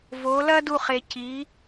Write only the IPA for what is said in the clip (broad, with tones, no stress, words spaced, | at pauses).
vo˨˦lɐ˥du˦˨ χe˨ci˨˦